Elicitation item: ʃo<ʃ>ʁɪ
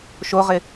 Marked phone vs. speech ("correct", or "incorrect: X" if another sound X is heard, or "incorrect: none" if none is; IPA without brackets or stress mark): incorrect: none